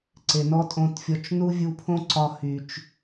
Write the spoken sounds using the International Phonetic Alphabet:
ǀ e˨ n ɔ˦ tʼ õ˧ t fʲ ɔ˧ t͡ʃ n u˦ vʲ u˧ pʰ õ˦ ǀ ɒ˧ h y˨ t͡ʃ

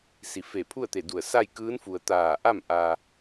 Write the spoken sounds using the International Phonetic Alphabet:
s i˩ f e˧˩ pʰ u˥˨ ə̯ t̪ e˧˩ d u˧˩ ə̯ s a˥˨ j k ɯː˧˥ n f u˩ ə̯ t̪ aː˧˩ ʔ a˥˨ m ʔ a˧

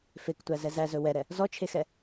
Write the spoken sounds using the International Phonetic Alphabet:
f e k tʷ æ z ɛ z æ z ɵ w ɛ ɾ ɛ | z ɔ t͡ʃʰ e x ɛ

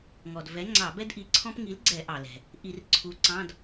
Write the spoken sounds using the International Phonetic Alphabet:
ŋ ɔ˩ d v ɛ˨˥ ŋ͡ǀ ɑ˧˩˧ b ɛ˥ d ʔ i˨˥ ǀʰ ɔ̃˥ p ŋ i˨˥ l ɡ͡ǀ ɛ˧˩˧ ʔ ɑ˩ l ɛ̤˩ | ʔ i˧˩˧ r ǀʰ u˨˥ ǀ ɑ̃˧˥˧ d

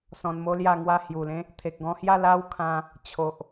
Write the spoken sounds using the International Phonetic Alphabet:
s ɔ̃˧ n m o˦ l j a˥˧ ŋ w a˥˧ h j u˨˩ l ẽ˦ | t̪ʰ e˨ k̚ ɡ ɔ̃˧ h j a˥˧ l a˦ w kʰ ã˧ | t͡ɕʰ o˨ ʔ

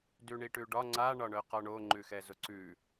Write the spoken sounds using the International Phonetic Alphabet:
d ʉ ɳ i ʈ ʉ ɖ ɒ ŋ͡ǀ a ɳ ɒ ɳ œ q ɒ ɳ o ŋ͡ǃ ʉ x ɛ z ʊ ǀ ʉ

